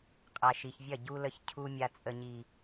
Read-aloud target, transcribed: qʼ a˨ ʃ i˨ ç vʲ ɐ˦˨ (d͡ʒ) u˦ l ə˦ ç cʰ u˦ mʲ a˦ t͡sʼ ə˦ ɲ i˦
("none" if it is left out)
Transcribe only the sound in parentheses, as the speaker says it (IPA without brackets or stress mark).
ɟ